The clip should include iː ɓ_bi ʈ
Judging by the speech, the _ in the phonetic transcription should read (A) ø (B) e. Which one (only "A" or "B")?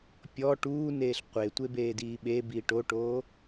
B